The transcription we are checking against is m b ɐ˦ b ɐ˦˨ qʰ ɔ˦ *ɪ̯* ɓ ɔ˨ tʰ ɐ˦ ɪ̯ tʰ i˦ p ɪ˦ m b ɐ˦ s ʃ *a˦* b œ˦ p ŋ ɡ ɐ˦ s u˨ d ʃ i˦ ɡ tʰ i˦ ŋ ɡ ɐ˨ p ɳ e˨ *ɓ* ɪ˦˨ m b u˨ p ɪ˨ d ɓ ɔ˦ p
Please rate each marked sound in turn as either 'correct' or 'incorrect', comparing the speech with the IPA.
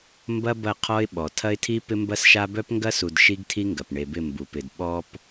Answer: correct, correct, incorrect: b

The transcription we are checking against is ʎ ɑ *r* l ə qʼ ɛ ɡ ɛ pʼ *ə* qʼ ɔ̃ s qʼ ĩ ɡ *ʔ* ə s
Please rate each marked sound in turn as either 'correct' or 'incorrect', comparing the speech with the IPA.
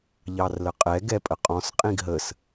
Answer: correct, correct, incorrect: ɦ

